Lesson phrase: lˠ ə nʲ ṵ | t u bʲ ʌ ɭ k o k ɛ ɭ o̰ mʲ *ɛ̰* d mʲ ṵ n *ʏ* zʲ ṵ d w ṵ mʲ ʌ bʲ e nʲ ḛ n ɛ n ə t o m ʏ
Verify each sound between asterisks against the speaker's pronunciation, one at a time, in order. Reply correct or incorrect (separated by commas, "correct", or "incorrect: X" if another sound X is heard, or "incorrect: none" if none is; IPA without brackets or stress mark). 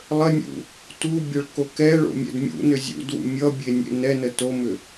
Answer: correct, correct